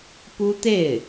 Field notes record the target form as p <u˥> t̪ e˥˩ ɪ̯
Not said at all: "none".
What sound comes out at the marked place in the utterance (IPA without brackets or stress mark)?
u˥